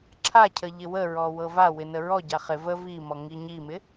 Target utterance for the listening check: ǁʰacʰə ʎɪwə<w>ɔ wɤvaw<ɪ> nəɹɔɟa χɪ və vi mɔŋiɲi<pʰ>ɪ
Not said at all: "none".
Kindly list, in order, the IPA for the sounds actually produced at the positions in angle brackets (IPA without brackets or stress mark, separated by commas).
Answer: ɹ, ɪ, m